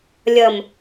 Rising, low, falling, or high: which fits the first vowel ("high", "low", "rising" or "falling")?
low